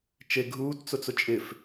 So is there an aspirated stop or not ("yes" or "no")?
no